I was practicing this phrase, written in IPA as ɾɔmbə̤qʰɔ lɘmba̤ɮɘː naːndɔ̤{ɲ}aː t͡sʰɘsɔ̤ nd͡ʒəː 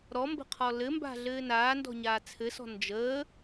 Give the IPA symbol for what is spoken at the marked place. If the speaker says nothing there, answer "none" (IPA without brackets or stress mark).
ɲ